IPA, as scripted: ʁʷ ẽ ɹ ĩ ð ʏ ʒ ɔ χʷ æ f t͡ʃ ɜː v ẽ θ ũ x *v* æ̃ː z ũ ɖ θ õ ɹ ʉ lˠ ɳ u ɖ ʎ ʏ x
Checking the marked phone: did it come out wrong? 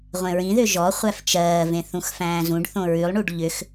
yes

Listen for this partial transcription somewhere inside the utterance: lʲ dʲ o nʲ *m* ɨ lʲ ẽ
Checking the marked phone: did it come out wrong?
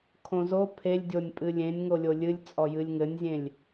yes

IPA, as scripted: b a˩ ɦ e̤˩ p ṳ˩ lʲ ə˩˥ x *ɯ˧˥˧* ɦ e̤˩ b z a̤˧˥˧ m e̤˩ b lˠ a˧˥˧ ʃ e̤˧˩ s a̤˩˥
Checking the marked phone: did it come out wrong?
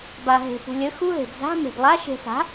yes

